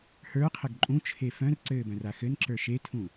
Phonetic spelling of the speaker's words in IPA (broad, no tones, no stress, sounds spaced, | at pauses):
h ə˞ qʰ ə ɡ ǃʼ ũ t͡ʃʰ e f œ̃ r ǀ ɘː b œ̃ r a x ɘ n ǁ ə˞ ʃ e tʰ ũ